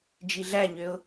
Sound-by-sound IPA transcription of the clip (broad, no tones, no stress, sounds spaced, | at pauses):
d͡ʒ i ɮ æ ɲ ø ʊ̯